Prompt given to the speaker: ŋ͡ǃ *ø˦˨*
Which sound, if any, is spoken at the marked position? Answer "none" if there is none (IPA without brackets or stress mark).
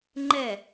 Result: ɛ˦˨